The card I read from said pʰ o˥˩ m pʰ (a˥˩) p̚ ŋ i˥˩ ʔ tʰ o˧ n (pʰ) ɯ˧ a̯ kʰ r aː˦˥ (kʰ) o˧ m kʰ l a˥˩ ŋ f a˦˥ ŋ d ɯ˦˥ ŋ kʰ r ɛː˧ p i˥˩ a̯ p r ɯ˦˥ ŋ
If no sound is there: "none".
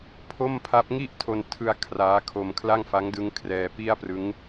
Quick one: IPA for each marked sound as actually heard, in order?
a˦˥, tʰ, kʰ

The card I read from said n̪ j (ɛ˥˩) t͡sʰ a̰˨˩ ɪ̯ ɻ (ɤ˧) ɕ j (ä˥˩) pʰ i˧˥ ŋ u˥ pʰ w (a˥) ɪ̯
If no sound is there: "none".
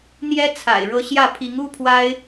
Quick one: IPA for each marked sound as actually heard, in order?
ɛ˥, ɤ˧˥, ä˥˩, a˥

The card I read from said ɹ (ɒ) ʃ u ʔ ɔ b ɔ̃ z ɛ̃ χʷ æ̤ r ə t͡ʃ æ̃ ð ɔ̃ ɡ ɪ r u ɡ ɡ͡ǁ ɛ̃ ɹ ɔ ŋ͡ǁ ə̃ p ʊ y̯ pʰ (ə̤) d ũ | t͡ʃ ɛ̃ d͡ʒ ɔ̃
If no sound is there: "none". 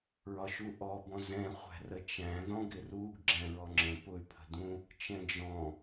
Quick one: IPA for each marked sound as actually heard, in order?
ɒ, ə̤

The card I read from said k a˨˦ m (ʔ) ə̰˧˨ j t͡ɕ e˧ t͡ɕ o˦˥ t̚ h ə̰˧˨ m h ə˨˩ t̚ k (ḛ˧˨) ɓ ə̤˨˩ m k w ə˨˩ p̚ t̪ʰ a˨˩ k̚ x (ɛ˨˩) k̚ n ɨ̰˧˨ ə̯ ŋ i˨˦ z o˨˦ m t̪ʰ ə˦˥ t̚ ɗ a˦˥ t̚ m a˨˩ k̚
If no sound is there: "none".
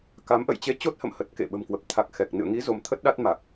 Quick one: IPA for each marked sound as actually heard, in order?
ʔ, ḛ˧˨, ɛ˨˩

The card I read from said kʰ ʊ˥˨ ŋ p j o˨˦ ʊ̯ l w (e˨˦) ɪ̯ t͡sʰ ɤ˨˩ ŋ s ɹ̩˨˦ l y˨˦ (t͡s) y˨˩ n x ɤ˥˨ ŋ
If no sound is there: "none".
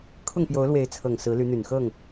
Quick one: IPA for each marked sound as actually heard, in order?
e˨˦, n̪

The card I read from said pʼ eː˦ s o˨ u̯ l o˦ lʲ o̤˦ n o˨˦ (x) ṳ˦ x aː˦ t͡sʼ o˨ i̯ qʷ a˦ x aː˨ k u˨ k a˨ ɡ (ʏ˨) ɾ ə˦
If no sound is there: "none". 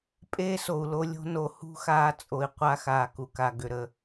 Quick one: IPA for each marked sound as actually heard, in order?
h, ʏ˨

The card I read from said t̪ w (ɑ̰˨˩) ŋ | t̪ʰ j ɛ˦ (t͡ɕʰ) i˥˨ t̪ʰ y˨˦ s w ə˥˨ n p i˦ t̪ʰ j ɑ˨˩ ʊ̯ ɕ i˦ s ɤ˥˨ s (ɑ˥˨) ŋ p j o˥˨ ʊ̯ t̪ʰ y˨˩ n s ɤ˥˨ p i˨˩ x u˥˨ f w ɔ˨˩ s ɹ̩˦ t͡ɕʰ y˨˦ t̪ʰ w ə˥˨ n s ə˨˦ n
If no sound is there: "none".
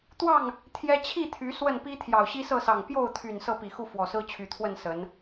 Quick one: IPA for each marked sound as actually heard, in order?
ɑ˥˨, t͡ɕʰ, ɑ˨˩

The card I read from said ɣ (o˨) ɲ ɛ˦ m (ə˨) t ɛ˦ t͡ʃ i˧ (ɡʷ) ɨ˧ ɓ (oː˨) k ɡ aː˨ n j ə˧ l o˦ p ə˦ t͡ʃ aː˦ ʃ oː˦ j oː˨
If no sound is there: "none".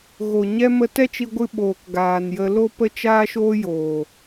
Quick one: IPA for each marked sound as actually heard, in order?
o˨, ə˧, ɡʷ, oː˨

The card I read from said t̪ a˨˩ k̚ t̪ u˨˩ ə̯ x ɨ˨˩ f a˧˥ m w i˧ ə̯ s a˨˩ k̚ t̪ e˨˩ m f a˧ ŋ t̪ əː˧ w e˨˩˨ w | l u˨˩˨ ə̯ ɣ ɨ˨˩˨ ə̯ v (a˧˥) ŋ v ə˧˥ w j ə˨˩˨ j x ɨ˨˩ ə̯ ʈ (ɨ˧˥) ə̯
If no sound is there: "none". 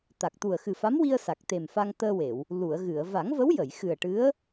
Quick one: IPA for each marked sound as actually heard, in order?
a˨˩˦, ɨ˧˥

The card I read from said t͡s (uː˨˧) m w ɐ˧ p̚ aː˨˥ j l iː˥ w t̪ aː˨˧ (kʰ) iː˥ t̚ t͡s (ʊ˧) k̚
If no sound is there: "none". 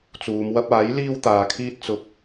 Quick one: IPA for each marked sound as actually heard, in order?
uː˨˧, kʰ, ʊ˧

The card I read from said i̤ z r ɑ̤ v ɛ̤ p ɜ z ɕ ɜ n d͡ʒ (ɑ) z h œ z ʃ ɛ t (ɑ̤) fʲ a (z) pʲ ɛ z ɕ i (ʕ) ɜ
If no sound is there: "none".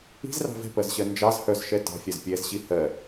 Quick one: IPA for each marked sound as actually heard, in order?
ɑ, ɑ̤, z, h

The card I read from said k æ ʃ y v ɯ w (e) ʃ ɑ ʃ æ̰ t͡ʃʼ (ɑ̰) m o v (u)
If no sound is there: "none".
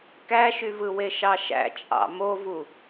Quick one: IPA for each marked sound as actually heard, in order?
e, ɑ̰, u

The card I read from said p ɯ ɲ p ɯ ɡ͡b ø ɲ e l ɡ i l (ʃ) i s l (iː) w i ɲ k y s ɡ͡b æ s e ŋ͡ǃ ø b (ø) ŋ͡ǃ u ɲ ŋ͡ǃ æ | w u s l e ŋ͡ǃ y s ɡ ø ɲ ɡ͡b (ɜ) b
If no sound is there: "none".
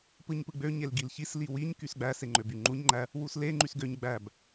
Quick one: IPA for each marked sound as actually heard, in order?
ç, i, y, æ

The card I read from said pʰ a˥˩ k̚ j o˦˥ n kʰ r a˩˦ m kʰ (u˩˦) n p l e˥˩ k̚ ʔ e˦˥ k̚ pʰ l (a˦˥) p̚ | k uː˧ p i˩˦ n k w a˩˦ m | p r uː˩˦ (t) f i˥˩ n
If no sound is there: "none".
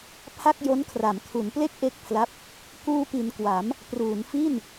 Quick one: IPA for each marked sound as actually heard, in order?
u˩˦, a˦˥, n

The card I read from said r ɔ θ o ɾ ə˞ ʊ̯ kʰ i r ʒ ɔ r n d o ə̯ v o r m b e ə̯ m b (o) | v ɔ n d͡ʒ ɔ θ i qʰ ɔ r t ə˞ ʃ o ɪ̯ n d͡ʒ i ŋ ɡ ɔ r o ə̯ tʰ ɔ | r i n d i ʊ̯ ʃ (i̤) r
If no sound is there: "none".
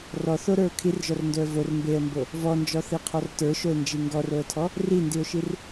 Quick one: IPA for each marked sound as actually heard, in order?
o, i

